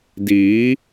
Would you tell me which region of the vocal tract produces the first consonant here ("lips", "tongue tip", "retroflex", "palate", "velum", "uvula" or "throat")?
tongue tip